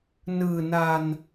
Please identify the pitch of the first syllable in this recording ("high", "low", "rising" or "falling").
low